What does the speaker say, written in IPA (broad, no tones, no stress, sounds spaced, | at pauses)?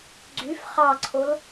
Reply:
ɡ͡ǀ y f χ ɑ ǀʰ o l